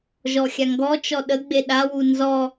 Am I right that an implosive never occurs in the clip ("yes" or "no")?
no